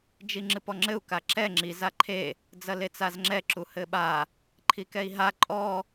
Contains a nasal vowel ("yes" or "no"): no